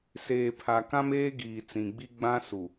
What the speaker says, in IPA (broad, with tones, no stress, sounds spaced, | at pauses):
s eː˨ pʰ a˨ k ã˦ m eː˦ ɡ iː˨ t͡s ĩ˨ ɡ͡b i˦ ɡ͡b ã˦ s u˨